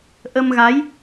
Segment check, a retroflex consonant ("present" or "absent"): absent